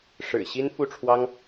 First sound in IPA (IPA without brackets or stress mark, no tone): ʂ